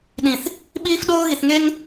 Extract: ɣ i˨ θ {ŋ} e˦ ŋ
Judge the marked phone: correct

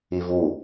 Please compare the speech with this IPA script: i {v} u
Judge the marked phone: correct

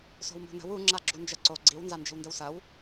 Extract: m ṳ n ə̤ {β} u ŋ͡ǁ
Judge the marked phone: incorrect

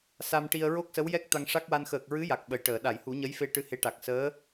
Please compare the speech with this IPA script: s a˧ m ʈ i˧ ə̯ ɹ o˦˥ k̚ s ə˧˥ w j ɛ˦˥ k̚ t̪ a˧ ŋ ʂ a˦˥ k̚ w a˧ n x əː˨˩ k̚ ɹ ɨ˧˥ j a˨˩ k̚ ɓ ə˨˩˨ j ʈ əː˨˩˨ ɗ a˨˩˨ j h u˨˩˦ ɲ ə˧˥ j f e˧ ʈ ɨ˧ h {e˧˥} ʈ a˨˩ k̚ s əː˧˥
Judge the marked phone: correct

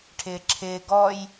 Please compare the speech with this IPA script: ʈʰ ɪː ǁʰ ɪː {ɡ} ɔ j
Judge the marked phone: correct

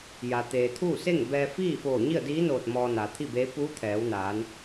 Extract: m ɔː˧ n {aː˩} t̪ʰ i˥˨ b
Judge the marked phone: correct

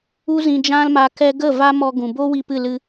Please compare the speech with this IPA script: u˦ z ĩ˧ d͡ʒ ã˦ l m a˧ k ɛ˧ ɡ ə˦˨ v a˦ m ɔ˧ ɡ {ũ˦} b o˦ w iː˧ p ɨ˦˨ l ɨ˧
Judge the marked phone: incorrect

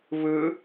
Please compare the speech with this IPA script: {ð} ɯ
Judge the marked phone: incorrect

